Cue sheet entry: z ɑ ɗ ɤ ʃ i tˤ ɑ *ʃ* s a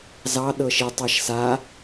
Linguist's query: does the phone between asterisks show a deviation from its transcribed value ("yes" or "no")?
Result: no